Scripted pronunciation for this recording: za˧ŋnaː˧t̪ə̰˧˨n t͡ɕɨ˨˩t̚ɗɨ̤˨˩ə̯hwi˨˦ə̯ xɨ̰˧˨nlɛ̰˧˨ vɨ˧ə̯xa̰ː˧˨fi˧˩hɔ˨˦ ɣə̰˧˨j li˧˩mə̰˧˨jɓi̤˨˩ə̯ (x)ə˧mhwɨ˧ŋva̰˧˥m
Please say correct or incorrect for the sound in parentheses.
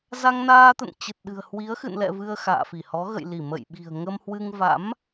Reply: incorrect